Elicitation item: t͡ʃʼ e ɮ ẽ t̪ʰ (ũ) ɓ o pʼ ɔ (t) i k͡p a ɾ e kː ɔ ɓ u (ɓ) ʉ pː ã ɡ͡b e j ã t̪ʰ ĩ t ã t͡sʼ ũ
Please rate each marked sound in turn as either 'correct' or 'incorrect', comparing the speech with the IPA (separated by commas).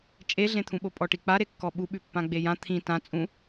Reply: correct, incorrect, correct